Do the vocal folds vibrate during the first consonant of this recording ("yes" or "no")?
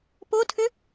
no